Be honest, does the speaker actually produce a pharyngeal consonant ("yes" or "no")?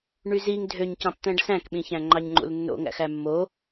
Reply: no